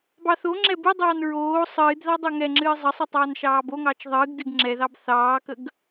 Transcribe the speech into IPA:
bɑθoŋ͡ǁɛ bɨdˤɑːn ɹoː sˤɨːdðɑ dˤoŋɛŋ͡ǁɨː zˤəsˤɨ tˤɑːnʃɑːboŋɑːt͡ʃ ðˤɨːɡ dɨɡŋ͡ǁɛðɑb θɑːkəɡ

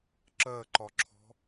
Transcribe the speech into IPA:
ǁɜǃɒǁʰɔ̤

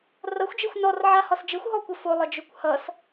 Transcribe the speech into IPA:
rʌxʷd͡ʒexʷ nɔrʕahɒs d͡ʒɘxʷɦɔkʷɘ folˠɘd͡ʒɵkʷ hʌs

